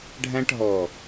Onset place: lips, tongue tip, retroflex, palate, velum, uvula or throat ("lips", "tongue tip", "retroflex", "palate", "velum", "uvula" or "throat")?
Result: retroflex